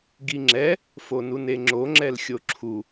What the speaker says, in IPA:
ɡ i ŋ͡ǁ ɛ | f o n u n e ŋ͡ǁ o ŋ͡ǁ ɛ l xʲ o ǁʰ u

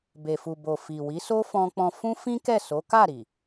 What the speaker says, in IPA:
b e˨ f u˨ b o˨ f i˨ w i˨˦ s o˦ f ɔ̃˧ k͡p ɔ̃˧ f ũ˦ f ĩ˦ k ɛ˦˨ s o˨˦ k a˦˨ ɾ i˨

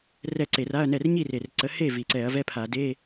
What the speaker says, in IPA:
r ɛ˥˩ ǀ e˧˩˧ r a˧˥˧ ɐ̯ n ɛ˥˩ r ɲ i˥˩ r e˨˩ r ǀ ə˨˦ h e˥˩ v i˨˩ ǀ ɛ˧˩˧ ɐ̯ v ɛ˧˥˧ pʰ a˧˩˧ d e˧˥˧

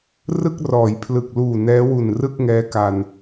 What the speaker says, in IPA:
r ɯ˥˩ k̚ r ɔː˩˦ j pʰ l ɯ˨˩ k̚ l uː˨˩ n ɛː˦˥ w u˨˩ n r ɯ˥˩ k̚ ŋ ɛː˦˥ k a˧ n

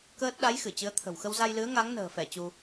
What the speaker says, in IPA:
k əː˦˥ t̚ ɗ a˨˦ j x ɨ˧˩ t͡ɕ ɨ˨˦ ə̯ t̪ʰ ə̤˨˩ w x ə˧ w z a˧ j l ɨ˨˦ ə̯ ŋ a˨˦ ŋ n ə̤ː˨˩ f ɛ˧˩ t͡ɕ u˧

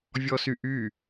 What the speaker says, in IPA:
vʲ ɔ s y ʔ y

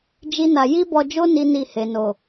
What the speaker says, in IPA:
d͡ʒ i˦ n a˧ j i˦ b ɔ˧ d͡ʒ o˦ n i˦ n i˦˨ h e˨ n o˨

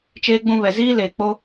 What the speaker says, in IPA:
t͡ʃ eː˦ ɡ͡b ũ˦ β ɛ˨ z iː˦ l eː˨ k͡p o˦

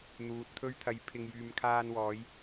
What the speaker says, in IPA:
n̪ uː˨ t̚ t̪ʰ ɵ˧ ɥ t̪ʰ ɐ˨˥ j pʰ ɪ˨ ŋ j yː˨ m kʰ aː˧ n w ɔː˨˧ j

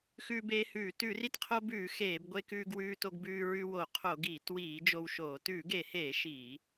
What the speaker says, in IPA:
x ʉː˧ b eː˧ h ʉː˧˩˧ t ʉ˧˩˧ r i˧ t qʰ o˧ b ʉː˧˩˧ x eː˧˩˧ b ɡʷ e˧ k ʉː˧ ɡ w ʉː˧ t o˧ ɡ b ʉː˧ ɹ ʉ˧ w o˧˩˧ qʰ o˧˩˧ ɡ iː˧˩˧ t w iː˧˩˧ d͡ʒ o˧ w ʃ oː˧˩˧ t ʉː˧˩˧ ɡ e˧˩˧ h eː˧˩˧ ʃ iː˧˩˧

